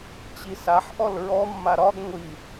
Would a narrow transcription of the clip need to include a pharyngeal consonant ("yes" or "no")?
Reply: yes